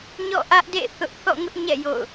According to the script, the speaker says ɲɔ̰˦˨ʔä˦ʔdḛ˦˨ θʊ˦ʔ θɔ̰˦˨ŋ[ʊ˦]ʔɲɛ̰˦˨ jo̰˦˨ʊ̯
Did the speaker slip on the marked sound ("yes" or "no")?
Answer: no